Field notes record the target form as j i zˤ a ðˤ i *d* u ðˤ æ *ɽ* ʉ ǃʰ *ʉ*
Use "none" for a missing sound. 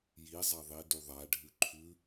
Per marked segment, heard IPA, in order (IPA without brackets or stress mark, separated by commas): d, ɖʱ, ʉ